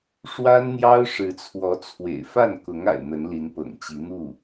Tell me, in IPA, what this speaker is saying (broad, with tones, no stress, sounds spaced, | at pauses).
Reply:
ʂ w a˥ n n̪ j ɑ˥ ʊ̯ ʂ ɻ̩˧˥ t͡sʰ w ɔ˧˥ t͡sʰ w ḛ˨˩ ɪ̯ f a˥˩ n k ʊ˧˥ ŋ a̰˨˩ ɪ̯ n̪ ə˧˥ n l i˧˥ n p ɤ̰˨˩ ŋ t͡ɕ i˧˥ n̪ u˥˩